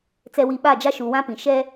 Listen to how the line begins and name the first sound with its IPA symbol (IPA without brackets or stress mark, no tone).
t͡s